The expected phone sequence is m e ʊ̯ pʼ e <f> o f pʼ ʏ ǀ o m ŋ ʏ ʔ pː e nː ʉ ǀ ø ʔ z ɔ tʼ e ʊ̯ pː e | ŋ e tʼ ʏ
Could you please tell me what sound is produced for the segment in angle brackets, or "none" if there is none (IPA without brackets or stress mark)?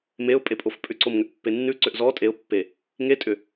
pʼ